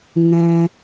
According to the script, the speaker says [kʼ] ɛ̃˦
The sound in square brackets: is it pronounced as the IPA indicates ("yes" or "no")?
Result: no